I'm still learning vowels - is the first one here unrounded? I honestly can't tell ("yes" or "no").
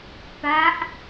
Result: yes